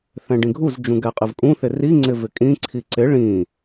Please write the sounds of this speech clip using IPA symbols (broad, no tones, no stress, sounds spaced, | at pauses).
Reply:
θ ɛ̃ ɖ ĩ ɡʱ u z d͡ʒ ũ ɡ ɛ qʼ ɪ v kʼ ũ θ ɪ r i ŋ͡ǀ ɪ v ɪ kʼ ĩ ǀʰ i ǀ ɪ ɭ ĩ